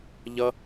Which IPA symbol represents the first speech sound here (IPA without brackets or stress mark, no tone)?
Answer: ʎ